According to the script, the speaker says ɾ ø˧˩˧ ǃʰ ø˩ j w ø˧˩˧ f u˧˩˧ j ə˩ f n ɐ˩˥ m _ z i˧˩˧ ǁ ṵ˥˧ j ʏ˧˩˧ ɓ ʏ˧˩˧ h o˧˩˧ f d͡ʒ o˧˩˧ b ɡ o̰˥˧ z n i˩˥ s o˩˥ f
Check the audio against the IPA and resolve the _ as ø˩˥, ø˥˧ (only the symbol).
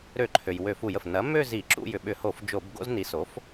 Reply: ø˥˧